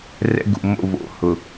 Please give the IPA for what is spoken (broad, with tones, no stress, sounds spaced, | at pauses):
r ɛ̰˦ ɡ ṵ˨ m o̰˦˨ v o̰˨ h ʊ˨